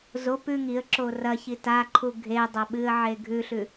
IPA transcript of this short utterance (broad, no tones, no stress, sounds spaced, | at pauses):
z o p ʉ ŋ i ə̯ ǁ o r ɐ ç i t a ǃʰ u ɡʱ e dˤ ɐ ɓ ɨ ə̯ ʕ e ɡʱ ʉ ɬ ʉ